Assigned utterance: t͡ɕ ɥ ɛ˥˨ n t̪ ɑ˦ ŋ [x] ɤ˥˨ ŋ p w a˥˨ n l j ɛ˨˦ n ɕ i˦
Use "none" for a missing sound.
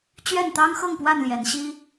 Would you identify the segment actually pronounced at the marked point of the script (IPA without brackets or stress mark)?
x